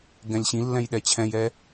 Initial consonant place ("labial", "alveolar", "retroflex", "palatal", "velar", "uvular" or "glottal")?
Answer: velar